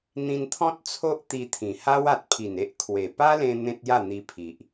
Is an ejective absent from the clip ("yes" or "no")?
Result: yes